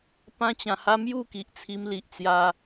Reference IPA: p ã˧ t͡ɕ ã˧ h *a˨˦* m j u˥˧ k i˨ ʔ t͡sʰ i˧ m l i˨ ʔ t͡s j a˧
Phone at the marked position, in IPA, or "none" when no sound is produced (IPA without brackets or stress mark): a˦